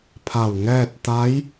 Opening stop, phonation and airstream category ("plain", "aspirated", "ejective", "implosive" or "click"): aspirated